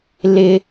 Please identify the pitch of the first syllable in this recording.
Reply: high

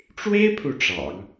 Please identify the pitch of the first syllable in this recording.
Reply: high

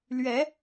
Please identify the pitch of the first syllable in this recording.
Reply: rising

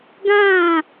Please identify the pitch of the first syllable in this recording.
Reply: falling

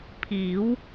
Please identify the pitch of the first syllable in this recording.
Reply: rising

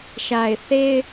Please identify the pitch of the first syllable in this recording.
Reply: low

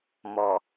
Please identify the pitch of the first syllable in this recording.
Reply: low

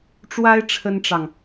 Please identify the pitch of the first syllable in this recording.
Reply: high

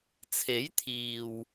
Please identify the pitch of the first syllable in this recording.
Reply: rising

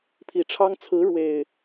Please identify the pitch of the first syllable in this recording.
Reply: low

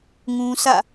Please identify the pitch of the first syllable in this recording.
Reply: high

